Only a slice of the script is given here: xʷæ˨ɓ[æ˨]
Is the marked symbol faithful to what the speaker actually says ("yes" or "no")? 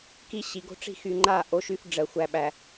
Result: yes